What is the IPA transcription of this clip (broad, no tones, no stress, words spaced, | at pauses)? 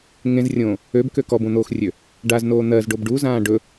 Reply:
ŋẽzrʲõː | øbkø kɔbõn̪oːxrʲø | ɖaznoː n̪ɜzɖob ɖuzãː ɖɵ